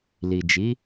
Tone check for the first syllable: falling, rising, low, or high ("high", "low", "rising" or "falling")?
low